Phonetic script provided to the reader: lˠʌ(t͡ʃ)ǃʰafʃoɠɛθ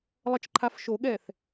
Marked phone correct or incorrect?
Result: correct